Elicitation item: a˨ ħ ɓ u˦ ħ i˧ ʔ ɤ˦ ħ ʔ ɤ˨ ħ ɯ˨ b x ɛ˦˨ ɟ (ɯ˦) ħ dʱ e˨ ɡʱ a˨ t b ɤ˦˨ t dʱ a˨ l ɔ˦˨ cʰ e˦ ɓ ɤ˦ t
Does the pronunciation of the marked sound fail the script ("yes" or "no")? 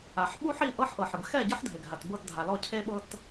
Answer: no